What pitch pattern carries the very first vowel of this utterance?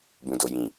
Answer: low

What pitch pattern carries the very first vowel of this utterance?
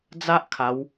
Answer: high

